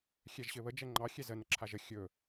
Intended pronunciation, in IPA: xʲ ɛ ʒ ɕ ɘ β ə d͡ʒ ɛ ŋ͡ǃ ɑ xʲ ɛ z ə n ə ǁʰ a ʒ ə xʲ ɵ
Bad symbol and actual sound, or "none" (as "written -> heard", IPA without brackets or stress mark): none